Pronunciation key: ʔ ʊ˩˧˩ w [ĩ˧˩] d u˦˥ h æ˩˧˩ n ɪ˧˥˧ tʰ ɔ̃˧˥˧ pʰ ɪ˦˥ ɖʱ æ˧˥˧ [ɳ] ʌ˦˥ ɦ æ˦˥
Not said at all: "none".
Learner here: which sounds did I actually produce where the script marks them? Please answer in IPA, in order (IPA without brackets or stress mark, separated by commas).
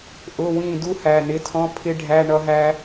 ĩ˧˩, ɳ